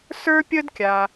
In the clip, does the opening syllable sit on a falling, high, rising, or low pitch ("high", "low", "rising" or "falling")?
high